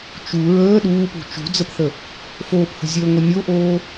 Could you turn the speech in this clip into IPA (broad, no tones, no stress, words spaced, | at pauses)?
t͡ʃu ɹəː ɗuːpṳ t͡ʃṳd͡zəpθə | foːphə̤zʲəːŋʷə nʲoʔoː